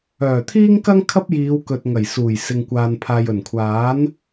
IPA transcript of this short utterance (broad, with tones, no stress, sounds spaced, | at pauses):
œː˨˩ t̪ʰ iː˥ ŋ k ɐ˥ ŋ kʰ ɐ˥ p̚ j iː˨˧ w k ɵ˨ t̚ ŋ ɐ˨˩ j s uː˨˩ j s ɪ˨ ŋ kʷ aː˨ n pʰ aː˨ j ɵ˨˩ n kʷʰ aː˨˥ n